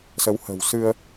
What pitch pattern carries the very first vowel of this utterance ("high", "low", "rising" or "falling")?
rising